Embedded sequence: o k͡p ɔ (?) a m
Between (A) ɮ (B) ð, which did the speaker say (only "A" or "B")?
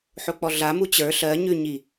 A